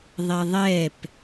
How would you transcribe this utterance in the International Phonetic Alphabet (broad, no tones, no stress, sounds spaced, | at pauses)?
ðˤ ɛ ðˤ ɛ p